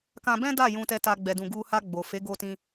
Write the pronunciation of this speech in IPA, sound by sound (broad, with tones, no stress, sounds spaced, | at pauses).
k ã˦ b ɛ̃˦ d a˦˨ j ũ˧ t ɛ˧ t a˧ ɡ͡b ɛ˧ d ũ˧ ɡ u˧ h a˧ ɡ͡b o˨ f e˨˦ ɡ o˧ t ĩ˧